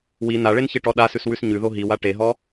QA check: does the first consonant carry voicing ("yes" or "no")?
yes